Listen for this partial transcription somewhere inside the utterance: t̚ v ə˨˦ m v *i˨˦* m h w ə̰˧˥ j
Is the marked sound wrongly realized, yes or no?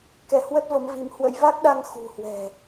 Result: no